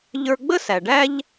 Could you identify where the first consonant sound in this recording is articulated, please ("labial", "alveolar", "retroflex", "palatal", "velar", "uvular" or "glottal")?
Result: palatal